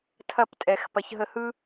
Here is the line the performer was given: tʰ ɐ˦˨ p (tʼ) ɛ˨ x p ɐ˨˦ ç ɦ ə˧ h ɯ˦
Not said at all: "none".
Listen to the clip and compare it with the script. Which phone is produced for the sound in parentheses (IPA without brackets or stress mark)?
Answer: tʼ